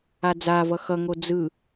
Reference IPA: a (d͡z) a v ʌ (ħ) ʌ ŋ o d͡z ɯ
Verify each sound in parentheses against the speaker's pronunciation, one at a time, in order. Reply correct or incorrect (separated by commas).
correct, incorrect